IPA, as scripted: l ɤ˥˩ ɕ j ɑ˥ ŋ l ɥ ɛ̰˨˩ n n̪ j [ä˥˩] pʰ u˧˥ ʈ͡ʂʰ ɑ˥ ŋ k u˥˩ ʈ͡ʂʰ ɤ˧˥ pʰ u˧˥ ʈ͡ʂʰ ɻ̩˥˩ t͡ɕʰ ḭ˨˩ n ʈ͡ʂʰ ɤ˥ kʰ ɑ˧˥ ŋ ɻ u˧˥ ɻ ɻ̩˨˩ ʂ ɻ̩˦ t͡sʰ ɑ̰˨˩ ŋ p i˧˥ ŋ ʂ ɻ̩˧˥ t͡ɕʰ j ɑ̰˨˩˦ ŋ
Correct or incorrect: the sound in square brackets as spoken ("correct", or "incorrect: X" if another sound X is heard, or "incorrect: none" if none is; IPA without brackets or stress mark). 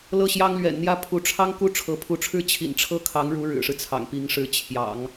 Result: correct